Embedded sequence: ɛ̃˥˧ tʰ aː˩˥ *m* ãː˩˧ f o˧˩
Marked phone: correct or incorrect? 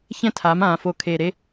correct